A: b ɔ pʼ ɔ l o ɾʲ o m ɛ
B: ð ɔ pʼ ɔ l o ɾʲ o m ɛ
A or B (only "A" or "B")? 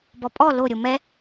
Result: A